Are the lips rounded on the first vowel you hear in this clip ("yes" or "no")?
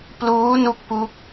yes